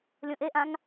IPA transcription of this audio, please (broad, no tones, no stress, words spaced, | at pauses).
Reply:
lʲõʔeʔãŋ